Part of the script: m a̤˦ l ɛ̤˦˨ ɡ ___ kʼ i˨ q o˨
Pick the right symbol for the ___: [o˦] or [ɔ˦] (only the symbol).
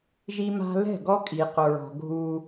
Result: ɔ˦